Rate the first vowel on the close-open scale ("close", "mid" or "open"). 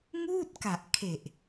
close